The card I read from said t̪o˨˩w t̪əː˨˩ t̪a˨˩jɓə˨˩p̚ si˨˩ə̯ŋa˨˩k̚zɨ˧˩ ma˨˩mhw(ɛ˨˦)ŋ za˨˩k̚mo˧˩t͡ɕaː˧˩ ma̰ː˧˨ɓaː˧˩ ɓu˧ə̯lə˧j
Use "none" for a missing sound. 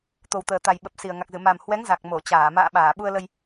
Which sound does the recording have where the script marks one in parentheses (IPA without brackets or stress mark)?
ɛ˨˦